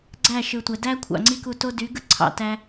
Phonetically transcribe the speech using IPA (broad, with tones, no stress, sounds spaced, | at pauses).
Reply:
ɡ͡ǀ æ˦˨ ʃ ɯ˨ tʷ æ˨ d æ˦ kʷʰ ɑ̰˨ ŋ͡ǀ i˦ k u˧ t o˦ d y˨˦ ɡ ɯ˦ ǀʰ ɑ̰˧ t æ˧